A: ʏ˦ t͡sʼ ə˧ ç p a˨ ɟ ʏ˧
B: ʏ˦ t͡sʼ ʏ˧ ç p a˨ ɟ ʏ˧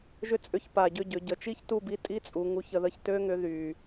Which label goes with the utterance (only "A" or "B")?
B